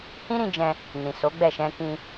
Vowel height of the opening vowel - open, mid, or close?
close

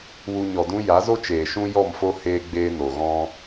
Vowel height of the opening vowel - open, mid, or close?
close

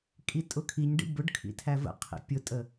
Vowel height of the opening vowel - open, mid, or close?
close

